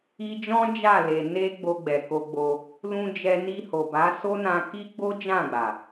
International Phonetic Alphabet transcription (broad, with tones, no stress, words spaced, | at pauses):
i˧d͡ʒɔ̃˦ d͡ʒa˦˨le˨ ne˧ ɡ͡bo˧ɡ͡bɛ˨ko˧ɡ͡bo˧ | lũ˧d͡ʒɛ˧ ni˧ho˨ba˨˦ so˦nã˧ ki˦ɡ͡bo˦d͡ʒã˦˨ɡ͡ba˨